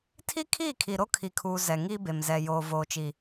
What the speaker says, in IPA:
tʰ i˦ kʰ iː˦˨ kʰ i˨ ɾ o˦ kʰ i˨ kʰ uː˨ z ɛ˨ ŋ iː˦ b e˨ m z ɛ˨ j oː˨ v oː˨ t͡ʃ i˨

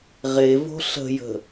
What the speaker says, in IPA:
ʁ e v o̤ ɬ ə̤ j ə̤

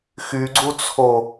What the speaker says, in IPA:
x y ɡ͡ǀ u t͡sʰ o

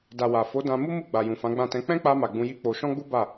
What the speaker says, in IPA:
d a˨ w a˨ f o˨˦ d ã˧ m u˦ m u˦˨ ɡ͡b a˨ j ũ˨ f ã˨˦ ɡ͡b ã˦˨ t ɛ̃˧ k͡p ɛ̃˦ k͡p a˧ m a˨ ɡ͡b ũ˧ j i˦ k͡p o˧ ʃ ɔ̃˦ ɡ͡b u˦ b a˦˨

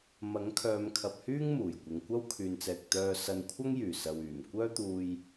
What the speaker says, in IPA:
m ɐ˨˥ ŋ kʰ œː˨˧ m kʰ ɐ˨ p̚ h yː˥ ŋ m uː˨˩ j kʷ ɪ˨ ŋ kʷ ɐ˥ w kʰ yː˨ n t͡s ɛː˨ k̚ t̪ œː˧ s ɐ˧ n kʷʰ ɐ˥ ŋ j yː˨˩ s ɐ˨ w yː˨˩ m kʷ œː˥ t̪ uː˧ j

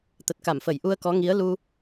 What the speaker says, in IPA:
t̪ ə˨˩ t̚ k a˧˩ m f ə˧˩ j ʔ u˧ ə̯ k ɔ˨˦ ŋ i˨˦ ə̯ l u˧

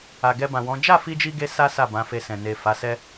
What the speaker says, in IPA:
a˨ ɡ ɛ˧ b ã˨ w ɔ̃˨˦ d͡ʒ a˦˨ f i˧ d͡ʒ i˧ ɡ e˦ s a˦ s a˦˨ b ã˨˦ f e˧ s ɛ̃˨ n e˨ f a˨˦ s ɛ˦

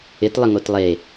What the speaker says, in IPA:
ɪ t lˠ ə ŋ o t lˠ e

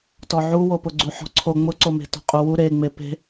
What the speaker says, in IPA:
t ɔ ʕ u w o p ʊ ɡ͡ǀ u ħ ɔ̤ ǀʰ o ŋ͡m ʊ ǀ o m e̤ t ɔ̤ qʼ u w u ɾ e ŋ͡m e p e̤

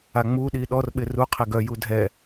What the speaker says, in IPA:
a ŋ͡m u ɗ i ɗ ɔ r ɓ ɪ r u qʰ ɪ ɡ œ j u dʱ ɛ

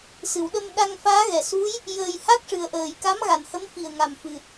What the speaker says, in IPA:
s ɨ˨˩˨ w ɗ ə˧ m ɗ a˧ ŋ f aː˧˥ ɣ ɛ˨˩˨ s u˧˥ j | j əː˧ j h a˦˥ k̚ ʂ ɨ˨˩ ə̯ ʔ əː˨˩ j k a˧˥ m ɣ a˨˩ n h ə˧˥ m f i˨˩ ə̯ ŋ a˨˩ m f ɨ˨˩ t̚

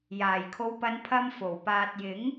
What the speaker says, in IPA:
j aː˨˩ j kʰ o˨˧ w p ɐ˨˧ n pʰ ɐ˧ m f o˨˩ w p aː˨ t̚ j ɪ˨˥ ŋ

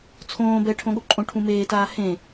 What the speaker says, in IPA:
t͡sʰ õː b ɛ ʈʰ õ ɠ o ǃʼ õ ʈʰ ũ m eː t aː h ẽ

